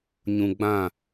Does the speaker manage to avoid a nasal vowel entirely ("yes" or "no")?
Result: no